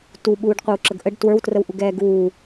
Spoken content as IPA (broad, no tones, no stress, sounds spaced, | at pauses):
t u ɓ uː ɖ qʷ ɛ w ǁ ə ɡ ʔ ə ɖ t w ə˞ w t r ə w ʔ u ɡ ɛː ɡ uː